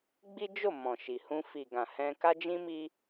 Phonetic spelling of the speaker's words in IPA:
ɡ͡b i˦ d͡ʒ o˦˨ m ɔ̃˨ ʃ i˨ h ũ˧ f i˨ ɡ ã˨ h ɛ̃˧ k a˦ d͡ʒ ĩ˦ m i˦

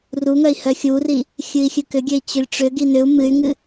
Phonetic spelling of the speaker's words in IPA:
r u ŋ œ i̯ h œ xʲ u r i | xʲ ɨ i̯ xʲ ɨ k ʏ ɡʲ ø i̯ t͡ɕ ø lʲ ʈ͡ʂ ʏ ɡ i n ʏ u̯ m ɨ y̯ ŋ ɨ

